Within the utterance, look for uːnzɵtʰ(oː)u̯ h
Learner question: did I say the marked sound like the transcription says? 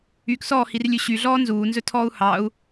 no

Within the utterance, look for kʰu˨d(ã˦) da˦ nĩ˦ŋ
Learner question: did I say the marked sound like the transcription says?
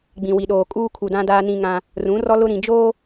yes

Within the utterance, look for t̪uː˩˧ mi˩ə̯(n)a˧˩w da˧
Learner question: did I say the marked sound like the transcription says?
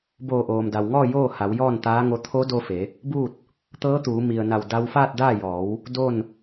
yes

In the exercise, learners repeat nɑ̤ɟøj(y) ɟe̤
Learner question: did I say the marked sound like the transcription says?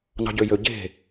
no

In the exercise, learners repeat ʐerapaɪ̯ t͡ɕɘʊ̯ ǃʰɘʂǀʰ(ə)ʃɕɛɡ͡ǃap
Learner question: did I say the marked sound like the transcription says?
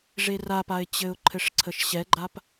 yes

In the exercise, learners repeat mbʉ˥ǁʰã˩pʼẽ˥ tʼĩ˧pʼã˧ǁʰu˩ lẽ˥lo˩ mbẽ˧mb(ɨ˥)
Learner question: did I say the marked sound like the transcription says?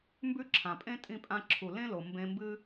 yes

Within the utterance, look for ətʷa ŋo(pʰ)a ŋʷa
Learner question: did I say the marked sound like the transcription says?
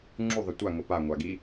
no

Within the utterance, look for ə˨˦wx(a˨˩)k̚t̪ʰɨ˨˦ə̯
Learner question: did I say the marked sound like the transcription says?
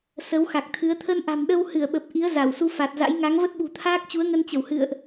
yes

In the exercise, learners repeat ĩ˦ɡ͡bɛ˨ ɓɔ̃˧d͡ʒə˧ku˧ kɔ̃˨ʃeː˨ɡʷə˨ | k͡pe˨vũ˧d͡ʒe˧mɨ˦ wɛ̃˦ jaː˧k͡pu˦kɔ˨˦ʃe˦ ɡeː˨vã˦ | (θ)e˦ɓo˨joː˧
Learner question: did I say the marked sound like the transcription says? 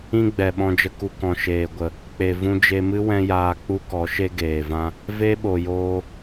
no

